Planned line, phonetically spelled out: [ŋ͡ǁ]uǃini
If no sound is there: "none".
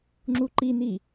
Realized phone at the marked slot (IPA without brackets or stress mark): ŋ͡ǁ